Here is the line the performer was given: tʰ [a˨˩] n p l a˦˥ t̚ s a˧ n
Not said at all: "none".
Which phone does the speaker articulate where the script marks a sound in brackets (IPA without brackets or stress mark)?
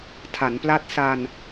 a˩˦